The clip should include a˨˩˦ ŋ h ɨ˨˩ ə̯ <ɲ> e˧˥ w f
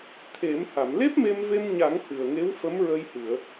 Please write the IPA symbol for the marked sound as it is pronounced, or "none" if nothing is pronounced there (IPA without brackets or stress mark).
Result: ŋ